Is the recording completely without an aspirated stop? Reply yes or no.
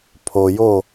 no